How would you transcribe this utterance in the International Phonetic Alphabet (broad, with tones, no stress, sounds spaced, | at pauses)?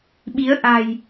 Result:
ɓ i˨˦ ə̯ ʔ a̤˨˩ j